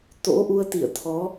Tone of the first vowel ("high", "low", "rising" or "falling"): rising